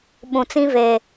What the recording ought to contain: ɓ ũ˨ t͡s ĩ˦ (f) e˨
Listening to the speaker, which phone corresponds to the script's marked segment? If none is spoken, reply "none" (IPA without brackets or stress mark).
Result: v